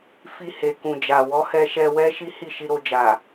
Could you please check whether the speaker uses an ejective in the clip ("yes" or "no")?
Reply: no